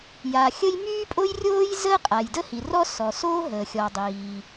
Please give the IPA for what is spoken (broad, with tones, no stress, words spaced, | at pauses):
ja˩xʲə˥j myː˥pʼo˥jrʲoː˥jzəː˥ qʼa˩jdə˥hi˩rɔ˥ sɔ˩soː˥ɦəː˩xʲɔ˩ dˤiː˩